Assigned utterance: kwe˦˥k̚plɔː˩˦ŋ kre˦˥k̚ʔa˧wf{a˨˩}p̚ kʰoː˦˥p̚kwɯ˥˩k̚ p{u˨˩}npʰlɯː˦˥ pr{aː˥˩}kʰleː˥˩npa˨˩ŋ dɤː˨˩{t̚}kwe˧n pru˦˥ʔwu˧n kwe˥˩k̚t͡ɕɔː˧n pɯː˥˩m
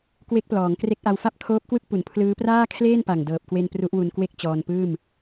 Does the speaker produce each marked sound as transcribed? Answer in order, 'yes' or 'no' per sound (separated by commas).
no, yes, yes, no